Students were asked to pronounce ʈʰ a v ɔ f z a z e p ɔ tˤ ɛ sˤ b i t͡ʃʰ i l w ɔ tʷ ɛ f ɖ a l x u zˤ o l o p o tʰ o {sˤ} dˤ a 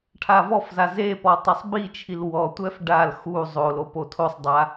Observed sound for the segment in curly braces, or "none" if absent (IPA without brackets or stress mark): sˤ